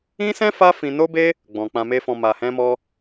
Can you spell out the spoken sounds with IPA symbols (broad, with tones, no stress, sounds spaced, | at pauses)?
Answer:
ĩ˦ s ɛ̃˦ f a˦ f ĩ˧ n o˦ b e˦ | ɡ͡b ɔ̃˨ k͡p ã˧ m e˦ f ɔ̃˧ m a˧ h ɛ̃˦ m ɔ˦